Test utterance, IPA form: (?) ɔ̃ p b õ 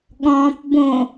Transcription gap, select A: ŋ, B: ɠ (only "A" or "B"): B